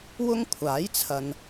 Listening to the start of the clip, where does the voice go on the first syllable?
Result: high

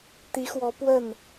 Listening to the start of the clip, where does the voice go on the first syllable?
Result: rising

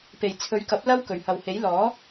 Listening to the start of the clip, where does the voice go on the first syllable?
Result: low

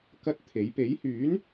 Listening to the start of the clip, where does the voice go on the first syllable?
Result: high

